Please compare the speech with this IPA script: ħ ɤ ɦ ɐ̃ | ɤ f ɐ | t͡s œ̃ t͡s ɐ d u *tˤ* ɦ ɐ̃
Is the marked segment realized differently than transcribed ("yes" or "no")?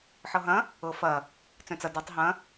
no